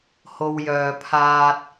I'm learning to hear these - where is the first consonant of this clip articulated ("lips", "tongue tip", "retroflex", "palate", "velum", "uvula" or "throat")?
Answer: throat